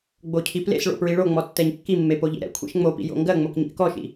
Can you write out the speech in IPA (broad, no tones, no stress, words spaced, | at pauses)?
ɡ͡bocʰiplḛsɭo̰ pɹiɭoŋ͡mɔ tːɛɲkːimːe poʎḭɾɛ̰kʷʰḛʃ ŋ͡mopḭ jo̰ŋɡɜŋ͡mok ɲḭʔkɔʃḭ